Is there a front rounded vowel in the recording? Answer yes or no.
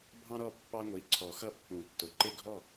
no